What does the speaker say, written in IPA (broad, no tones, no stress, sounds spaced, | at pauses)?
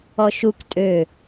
ɔ ʃ u k tʼ ø